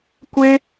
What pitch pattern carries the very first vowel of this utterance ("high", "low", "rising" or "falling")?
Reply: high